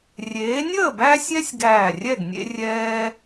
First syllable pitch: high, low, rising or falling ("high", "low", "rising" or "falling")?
rising